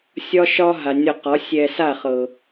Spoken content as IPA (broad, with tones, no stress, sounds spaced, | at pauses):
sʲ ɒ˦ ʃ ɒ˦ ɦ a˨ nʲ ɒ˧ q ɒ˨˦ sʲ ɛ˧ s a˦˨ χ ɤ˨